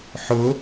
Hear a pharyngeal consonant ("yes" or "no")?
yes